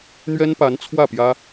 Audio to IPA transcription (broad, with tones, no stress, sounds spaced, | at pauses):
n̪ ɥ ɛ˥ n p a˧˥ n t͡sʰ w ä˥˩ p j ä˥